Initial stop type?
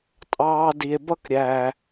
ejective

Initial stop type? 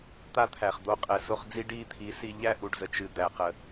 plain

